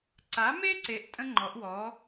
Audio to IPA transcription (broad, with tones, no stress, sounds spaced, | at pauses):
ǀ a˨˥ m e˥ ǀ e˨˥ ʔ tʼ ə̃˥ ŋ͡ǃ ɔ˨˥ ʔ w ɔ˨˥